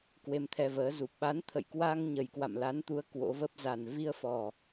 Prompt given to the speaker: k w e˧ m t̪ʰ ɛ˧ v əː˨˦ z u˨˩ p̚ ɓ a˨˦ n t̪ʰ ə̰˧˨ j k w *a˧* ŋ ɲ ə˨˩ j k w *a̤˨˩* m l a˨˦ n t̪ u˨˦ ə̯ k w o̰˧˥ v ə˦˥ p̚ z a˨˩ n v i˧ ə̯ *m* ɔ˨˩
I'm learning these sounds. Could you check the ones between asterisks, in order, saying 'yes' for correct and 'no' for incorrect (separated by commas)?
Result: yes, no, no